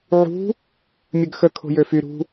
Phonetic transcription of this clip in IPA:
ʕṳ | mʲəɡxə kʰo̤jøfy ɾṳ

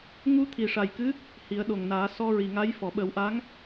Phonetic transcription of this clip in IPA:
ŋu˧t̪ʰi˨˩ ʂa˨˩jkɨ˧˥ | hi˨˩˦ə̯ɗo˨˩ŋnaː˨˩˦ sɔ˧ɹi˨˩ŋa˧˥j fɔ˨˩˨ɓə˨˩˦wʔa˧˥ŋ

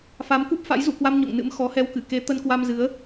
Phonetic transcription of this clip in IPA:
fa˨˦mku˦˥p̚fa̰˧˥j zṵ˧˨kwa˧m ɲo̰˧˨ŋnɨ̰˧˥m xɔ˨˦hɛ˧wkɨ˧˩ ke˨˦ t̪ə˧nkwa˧mzɨ˨˦ə̯

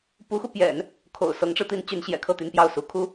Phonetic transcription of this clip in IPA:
pu˧˥xu˧ pjɛ̰˨˩˦n | kʰo̰˨˩ʊ̯sɤ˧˥ŋʈ͡ʂɻ̩˧t̪i˧˥n t͡ɕy˧˥nɕjɛ̰˨˩kʰɤ˥˩ t̪y˧˥npjɑ˥˩ʊ̯su˧˥ kʰu˥

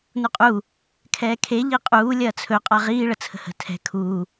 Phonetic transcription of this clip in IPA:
nuqʼu | kʰɛːkʰe ʎiqʼuː lʲɐːt͡sʰɵ qʼaʁiː ɭət͡sʰə̤hə̤ tʰɛ̤ kʰu

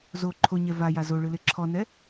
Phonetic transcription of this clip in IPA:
zo ǃʰoɲɛ vaja zoɭɯle ǁʰɔnɛ

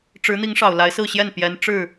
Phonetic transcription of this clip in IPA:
ʈ͡ʂɻ̩˧˥n̪i˧˥ŋ ʂɑ˨˩ʊ̯la˧˥ɪ̯sɹ̩˥˧ɕjɛ˥˩n pjɛ˧˥n ʈ͡ʂɻ̩˥˩

